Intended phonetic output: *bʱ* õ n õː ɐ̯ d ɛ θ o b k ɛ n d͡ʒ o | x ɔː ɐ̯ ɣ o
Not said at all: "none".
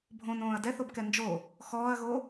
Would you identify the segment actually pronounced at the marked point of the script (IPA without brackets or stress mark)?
bʱ